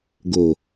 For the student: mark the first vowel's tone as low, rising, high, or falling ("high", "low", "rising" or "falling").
low